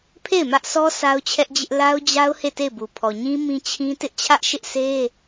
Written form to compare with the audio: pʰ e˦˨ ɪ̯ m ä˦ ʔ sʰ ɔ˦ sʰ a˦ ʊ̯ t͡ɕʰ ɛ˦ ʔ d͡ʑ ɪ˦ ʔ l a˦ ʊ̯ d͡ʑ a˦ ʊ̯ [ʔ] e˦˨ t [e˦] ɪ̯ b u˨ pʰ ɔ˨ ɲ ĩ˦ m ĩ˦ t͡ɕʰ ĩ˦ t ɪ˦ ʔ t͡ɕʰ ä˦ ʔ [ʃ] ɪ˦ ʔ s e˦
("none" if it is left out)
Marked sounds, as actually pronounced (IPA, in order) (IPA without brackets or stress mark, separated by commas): h, e˦˨, ʃ